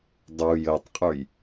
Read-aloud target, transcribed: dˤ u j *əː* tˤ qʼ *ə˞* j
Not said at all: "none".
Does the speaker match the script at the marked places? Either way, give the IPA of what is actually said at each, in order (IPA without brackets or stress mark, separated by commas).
əː, ə˞